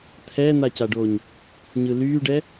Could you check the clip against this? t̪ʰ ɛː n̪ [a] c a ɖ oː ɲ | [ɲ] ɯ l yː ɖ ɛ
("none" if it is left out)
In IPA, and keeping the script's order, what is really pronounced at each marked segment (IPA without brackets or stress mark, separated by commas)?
a, ɲ